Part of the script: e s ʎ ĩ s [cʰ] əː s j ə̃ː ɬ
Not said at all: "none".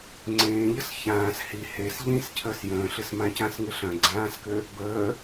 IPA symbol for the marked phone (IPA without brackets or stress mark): cʰ